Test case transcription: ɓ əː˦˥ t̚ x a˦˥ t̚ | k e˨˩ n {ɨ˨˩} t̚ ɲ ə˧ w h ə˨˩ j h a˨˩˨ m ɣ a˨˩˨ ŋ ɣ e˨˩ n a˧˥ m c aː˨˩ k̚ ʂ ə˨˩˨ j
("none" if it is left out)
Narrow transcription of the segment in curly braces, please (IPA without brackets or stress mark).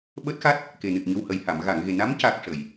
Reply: ɨ˨˩